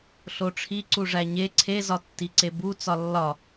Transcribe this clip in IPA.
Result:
ɬ o ʈ͡ʂʰ i ǀ u ʐ æ ɲ e ǀʰ e z ɒ tː i ǀ e b u t͡s ɒ lː ɒ

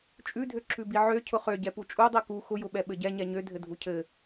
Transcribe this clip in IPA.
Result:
t͡ʃʼ ʉ dʱ ø ǁʰ ʉ b i ʕ ø cʰ ʊ χ ø ɟ ɛ p u t͡ʃʼ u dˤ i k u x ʊ j ʊ ɓ ɛ ɓ ɘ ɟ ɛ ɲ ɛ ɲ ø dʱ ɘ dʱ u cʰ ɘ

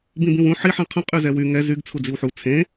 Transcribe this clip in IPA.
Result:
b ĩ b ĩ w ũ ħ i ħ ɛ̃ qʰ ə̃ qʼ y z ɛ w y ŋ ɛ z y ɡ t͡sʰ u d͡z i w ħ u t͡sʰ ẽ

